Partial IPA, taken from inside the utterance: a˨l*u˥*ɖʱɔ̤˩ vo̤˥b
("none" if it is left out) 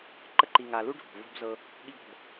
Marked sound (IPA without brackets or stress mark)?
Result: u˥